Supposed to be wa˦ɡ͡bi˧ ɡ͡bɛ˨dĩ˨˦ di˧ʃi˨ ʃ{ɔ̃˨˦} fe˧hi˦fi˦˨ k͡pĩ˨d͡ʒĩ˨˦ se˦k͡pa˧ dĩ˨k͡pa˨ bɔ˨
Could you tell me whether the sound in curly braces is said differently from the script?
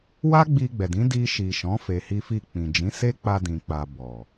no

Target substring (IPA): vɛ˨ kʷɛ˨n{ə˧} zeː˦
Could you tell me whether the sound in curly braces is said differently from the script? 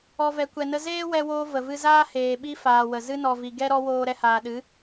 no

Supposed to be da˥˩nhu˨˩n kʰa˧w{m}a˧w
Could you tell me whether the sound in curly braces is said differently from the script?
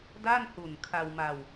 no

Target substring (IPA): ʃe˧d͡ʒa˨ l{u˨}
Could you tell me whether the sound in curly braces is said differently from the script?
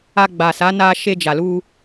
yes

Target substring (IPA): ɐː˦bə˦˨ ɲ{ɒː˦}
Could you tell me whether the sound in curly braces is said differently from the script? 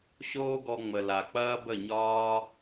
no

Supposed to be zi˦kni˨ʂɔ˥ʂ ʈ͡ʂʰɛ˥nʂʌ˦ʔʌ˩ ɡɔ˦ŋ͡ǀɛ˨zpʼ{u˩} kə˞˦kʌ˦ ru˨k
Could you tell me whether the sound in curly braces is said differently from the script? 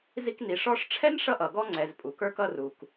no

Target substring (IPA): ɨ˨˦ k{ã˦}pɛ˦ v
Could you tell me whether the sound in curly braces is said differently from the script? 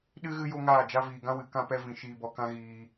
no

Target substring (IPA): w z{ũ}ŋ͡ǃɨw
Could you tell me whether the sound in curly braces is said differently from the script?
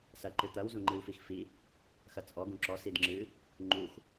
yes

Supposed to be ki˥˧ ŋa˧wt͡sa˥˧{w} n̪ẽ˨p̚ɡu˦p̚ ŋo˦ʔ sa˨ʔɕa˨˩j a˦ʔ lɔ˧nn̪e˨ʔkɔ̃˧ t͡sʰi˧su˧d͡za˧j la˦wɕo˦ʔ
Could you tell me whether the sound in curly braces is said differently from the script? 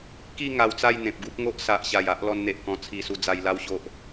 yes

